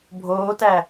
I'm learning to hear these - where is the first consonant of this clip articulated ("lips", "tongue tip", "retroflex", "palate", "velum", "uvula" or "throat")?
lips